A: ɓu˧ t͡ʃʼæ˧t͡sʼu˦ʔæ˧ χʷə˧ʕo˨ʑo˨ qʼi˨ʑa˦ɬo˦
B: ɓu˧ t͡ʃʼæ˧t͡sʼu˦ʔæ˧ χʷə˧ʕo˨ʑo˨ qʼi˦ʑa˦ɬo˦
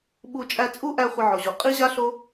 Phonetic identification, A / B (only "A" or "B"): B